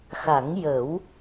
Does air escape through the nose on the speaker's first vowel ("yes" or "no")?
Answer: no